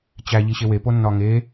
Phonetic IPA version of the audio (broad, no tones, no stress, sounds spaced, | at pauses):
t͡ɕ æ ʎ i ɕ e w e p o nː ɒ ŋ e